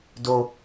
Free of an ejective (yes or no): yes